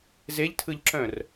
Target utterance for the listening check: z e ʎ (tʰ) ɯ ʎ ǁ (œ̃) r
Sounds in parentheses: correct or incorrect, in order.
correct, correct

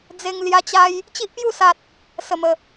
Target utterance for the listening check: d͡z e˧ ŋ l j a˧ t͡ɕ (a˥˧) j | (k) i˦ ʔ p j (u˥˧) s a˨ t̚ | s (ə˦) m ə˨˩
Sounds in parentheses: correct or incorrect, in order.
incorrect: a˧, incorrect: t͡ɕ, correct, incorrect: ə˨˩

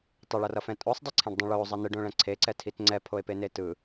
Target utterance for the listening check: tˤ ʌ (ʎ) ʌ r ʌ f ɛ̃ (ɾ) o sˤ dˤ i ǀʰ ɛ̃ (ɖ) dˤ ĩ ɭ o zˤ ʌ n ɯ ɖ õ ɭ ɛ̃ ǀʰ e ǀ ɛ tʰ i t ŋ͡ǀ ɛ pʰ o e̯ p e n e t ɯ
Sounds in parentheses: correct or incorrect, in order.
incorrect: ɭ, incorrect: tʼ, correct

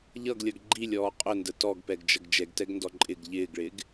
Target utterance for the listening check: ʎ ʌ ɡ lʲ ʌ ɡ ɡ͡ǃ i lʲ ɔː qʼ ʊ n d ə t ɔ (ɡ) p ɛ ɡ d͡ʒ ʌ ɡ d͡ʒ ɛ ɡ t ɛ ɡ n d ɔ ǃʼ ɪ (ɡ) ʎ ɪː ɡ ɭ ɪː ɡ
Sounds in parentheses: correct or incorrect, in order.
correct, correct

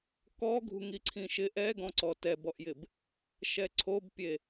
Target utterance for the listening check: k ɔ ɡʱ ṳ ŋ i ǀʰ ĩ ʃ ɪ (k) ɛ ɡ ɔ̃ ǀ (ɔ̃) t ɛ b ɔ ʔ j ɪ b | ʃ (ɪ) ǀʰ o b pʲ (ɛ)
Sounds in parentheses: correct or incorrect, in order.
incorrect: ʔ, incorrect: ɔ, incorrect: ɛ, incorrect: e

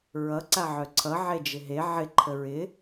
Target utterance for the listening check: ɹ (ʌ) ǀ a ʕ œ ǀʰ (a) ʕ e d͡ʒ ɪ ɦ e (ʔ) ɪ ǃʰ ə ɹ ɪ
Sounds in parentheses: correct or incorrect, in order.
correct, incorrect: ʌ, incorrect: ʕ

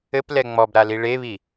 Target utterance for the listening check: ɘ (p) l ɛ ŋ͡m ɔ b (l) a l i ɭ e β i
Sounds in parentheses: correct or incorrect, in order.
correct, incorrect: ɾ

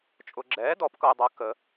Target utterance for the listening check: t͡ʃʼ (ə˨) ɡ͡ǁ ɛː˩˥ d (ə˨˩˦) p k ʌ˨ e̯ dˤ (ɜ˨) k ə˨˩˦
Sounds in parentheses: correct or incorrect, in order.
incorrect: ʊ˨, incorrect: ɔ˨˩˦, correct

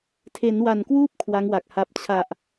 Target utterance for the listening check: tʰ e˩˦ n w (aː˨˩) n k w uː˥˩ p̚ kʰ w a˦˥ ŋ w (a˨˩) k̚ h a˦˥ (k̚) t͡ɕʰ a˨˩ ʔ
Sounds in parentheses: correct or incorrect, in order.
incorrect: a˨˩, correct, incorrect: p̚

